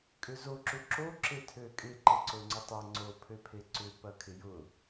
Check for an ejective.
present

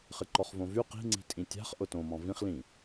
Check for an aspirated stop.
absent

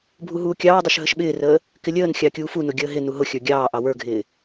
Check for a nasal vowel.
absent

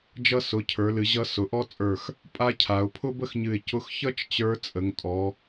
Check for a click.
absent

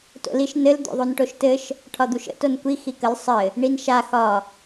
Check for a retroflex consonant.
present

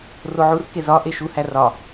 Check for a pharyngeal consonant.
present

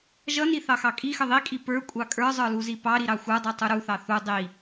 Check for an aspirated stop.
absent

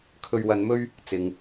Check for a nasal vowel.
absent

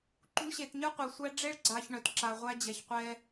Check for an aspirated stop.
absent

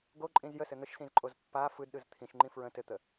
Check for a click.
present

